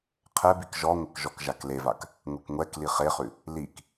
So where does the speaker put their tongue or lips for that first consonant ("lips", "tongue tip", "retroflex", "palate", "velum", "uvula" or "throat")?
uvula